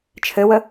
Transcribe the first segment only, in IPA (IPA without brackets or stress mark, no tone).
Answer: t͡ʃʰ